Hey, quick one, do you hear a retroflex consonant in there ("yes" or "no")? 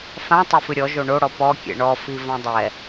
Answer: yes